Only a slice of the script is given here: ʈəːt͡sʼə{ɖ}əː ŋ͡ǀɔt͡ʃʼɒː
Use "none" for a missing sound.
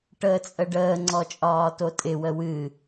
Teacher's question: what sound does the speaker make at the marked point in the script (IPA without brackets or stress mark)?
ɖ